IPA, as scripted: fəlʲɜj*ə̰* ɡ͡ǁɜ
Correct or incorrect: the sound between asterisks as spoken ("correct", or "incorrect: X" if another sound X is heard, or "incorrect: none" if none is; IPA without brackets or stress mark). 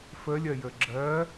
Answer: incorrect: ə